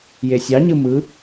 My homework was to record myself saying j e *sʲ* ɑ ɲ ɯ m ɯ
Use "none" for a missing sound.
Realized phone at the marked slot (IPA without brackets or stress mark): sʲ